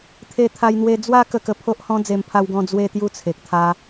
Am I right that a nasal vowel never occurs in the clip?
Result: no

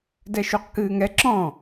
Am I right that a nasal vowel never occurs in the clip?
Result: no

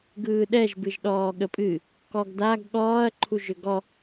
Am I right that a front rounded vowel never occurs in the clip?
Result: no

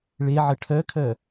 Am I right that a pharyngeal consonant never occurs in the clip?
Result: no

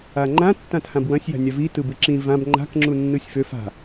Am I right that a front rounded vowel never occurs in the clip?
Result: no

